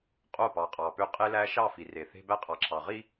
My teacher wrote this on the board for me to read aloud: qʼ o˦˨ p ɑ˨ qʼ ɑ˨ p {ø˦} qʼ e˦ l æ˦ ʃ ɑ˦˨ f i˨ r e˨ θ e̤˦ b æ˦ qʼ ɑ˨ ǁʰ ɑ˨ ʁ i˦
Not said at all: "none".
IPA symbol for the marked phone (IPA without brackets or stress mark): ø˦